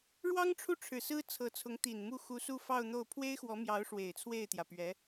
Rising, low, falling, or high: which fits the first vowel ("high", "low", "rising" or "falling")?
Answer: high